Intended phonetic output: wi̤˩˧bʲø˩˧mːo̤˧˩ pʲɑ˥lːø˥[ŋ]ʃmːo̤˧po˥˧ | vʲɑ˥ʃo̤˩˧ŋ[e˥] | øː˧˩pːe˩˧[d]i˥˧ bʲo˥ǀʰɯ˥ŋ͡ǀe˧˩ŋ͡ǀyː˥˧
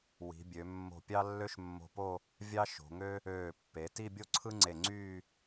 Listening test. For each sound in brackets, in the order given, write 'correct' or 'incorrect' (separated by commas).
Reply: incorrect, incorrect, incorrect